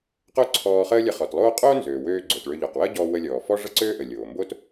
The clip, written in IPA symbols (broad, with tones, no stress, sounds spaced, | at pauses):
q o˥ ǀʰ ɔː˧ χ əː˥ lʲ ə˧ χ ɔ˩ t lˠ oː˥ qʼ oː˥ n z øː˩ w øː˧ ɡ͡ǀ o˩ t ɭ ø˧ ʎ ɔ˩ q w əː˥ ɟ ɔː˧ w ə˧ lʲ ɔː˩ f ɔ˥ ʐ ə˥ ǀ øː˥ ʔ ə˩ lʲ oː˩ m b o˥ t